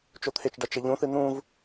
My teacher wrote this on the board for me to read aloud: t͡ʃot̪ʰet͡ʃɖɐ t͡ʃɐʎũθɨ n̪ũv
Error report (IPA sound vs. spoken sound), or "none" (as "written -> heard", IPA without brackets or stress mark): none